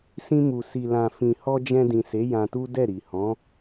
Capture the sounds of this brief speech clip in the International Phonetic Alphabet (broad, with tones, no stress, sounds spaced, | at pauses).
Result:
s ĩ˧ m u˨ s i˨ l ã˨ f ĩ˨ h ɔ˧ d͡ʒ ɛ̃˧ d ĩ˨ s e˨˦ j ã˧ t u˦ d ɛ˦˨ ɾ i˨ h ɔ̃˨˦